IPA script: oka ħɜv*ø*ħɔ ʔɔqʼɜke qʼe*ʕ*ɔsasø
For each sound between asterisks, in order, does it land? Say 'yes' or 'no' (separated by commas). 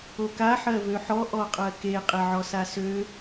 yes, yes